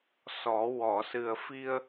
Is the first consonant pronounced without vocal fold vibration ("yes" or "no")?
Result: yes